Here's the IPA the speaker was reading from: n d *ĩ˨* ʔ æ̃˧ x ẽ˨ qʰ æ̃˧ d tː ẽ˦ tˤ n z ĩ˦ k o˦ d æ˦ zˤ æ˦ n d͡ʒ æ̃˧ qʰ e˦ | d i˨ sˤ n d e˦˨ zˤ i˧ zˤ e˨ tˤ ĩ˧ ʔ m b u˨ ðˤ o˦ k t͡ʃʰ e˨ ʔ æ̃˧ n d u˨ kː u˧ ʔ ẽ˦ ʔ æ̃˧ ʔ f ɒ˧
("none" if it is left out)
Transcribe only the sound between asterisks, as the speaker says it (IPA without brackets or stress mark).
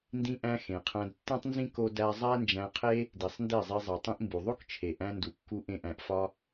ĩ˧